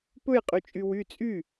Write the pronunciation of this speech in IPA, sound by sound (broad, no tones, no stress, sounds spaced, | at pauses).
p ɵ j qʼ y t͡ʃʼ y w y t͡sʼ y